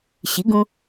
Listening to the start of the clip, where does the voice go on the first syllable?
rising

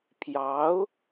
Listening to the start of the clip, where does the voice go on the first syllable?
rising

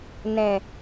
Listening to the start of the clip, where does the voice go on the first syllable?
low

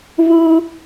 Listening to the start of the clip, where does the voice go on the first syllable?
high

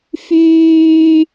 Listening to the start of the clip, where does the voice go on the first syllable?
low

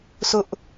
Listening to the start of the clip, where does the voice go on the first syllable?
high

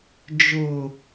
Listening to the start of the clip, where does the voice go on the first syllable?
low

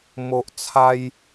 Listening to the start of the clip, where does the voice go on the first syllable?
low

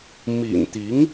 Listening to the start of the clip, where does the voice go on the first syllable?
low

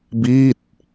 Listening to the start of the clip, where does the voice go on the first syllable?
falling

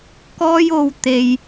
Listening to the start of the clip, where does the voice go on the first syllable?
high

